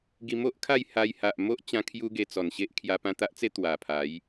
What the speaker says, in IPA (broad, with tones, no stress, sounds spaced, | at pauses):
ɡ i˧ m o˦ ʔ kʰ a˥˧ j h a˧ j h a˨ ʔ m o˦ ʔ t͡ɕ ã˧ kʰ j u˦ ɡ e˧ t͡s ɔ˨˩ n ɕ e˦ ʔ kʰ j a˧ p ã˧ t̪ a˦ ʔ t͡s e˦ t̪ w a˨˩ pʰ a˨˦ j